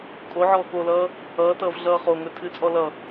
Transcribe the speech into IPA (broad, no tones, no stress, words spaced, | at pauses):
kʼoʕɔː kolʌː | ʌːtʌːv ɮʌːχoŋɵ tʰɨt͡sʼɔ lʌ